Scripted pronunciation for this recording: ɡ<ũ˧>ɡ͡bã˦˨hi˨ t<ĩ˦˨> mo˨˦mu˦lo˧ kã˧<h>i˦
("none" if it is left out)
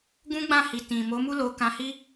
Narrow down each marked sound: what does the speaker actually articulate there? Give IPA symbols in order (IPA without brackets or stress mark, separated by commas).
ũ˦, ĩ˨, h